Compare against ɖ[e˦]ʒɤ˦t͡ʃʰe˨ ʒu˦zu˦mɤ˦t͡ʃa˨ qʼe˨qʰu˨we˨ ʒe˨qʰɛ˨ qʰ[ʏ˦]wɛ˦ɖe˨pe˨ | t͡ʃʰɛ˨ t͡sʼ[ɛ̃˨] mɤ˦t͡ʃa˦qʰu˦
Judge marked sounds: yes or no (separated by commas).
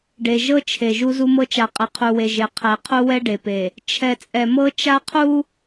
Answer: no, no, no